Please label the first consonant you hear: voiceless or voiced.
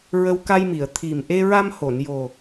voiced